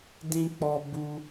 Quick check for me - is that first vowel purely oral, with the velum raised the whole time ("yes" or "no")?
no